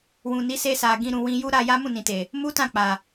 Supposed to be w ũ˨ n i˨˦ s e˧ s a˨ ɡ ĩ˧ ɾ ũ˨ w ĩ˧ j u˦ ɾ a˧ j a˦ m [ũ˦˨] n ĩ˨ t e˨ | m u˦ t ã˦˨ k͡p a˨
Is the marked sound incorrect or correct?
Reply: correct